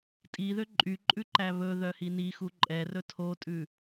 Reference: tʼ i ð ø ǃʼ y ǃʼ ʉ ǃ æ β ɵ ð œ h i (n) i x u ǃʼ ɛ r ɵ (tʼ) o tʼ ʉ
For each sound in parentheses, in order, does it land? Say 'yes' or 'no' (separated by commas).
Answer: yes, no